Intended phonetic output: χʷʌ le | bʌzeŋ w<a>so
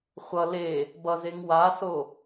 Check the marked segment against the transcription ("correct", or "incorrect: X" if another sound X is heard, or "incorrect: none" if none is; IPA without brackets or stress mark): correct